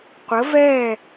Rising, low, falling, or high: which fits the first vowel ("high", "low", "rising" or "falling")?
rising